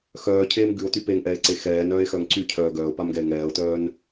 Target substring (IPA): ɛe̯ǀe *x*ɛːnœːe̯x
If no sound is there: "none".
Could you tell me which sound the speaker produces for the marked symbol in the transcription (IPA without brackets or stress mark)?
x